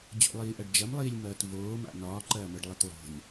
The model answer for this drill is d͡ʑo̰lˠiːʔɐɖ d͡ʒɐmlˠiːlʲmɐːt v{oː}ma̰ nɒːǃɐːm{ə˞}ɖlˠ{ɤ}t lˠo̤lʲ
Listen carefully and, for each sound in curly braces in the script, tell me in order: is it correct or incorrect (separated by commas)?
correct, correct, correct